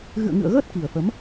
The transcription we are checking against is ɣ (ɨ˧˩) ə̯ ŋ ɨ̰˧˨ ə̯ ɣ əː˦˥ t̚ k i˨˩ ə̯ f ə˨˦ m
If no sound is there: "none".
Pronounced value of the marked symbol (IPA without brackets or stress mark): ɨ̰˧˨